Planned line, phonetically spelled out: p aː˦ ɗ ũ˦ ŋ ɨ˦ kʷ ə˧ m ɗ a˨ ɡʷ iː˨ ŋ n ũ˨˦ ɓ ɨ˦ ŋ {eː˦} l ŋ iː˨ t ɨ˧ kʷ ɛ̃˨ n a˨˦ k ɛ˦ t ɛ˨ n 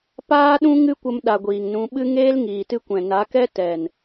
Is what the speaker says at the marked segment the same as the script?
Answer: yes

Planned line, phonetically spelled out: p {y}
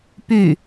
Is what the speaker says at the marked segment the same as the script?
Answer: yes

